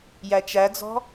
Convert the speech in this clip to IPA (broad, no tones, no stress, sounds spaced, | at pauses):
j æ t͡ʃ æ d͡z ɔ̤